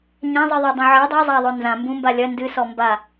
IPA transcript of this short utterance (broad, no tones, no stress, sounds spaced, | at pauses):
ɲ ã zˤ i ðˤ a dˤ ũ ʕ i dˤ a zˤ a ðˤ o n z ã m b ũ m b a lʲ ɐ n d ɨ s ɔ m b a